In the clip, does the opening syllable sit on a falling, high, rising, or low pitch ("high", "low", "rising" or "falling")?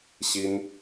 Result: high